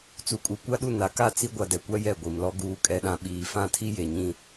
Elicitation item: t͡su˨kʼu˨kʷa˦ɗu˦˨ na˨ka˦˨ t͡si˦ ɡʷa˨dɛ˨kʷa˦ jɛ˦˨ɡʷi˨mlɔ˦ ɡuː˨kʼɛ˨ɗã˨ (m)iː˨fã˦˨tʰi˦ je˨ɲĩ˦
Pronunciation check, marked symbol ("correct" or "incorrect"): incorrect